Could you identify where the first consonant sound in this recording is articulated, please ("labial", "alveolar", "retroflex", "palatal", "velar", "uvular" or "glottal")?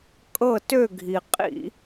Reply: velar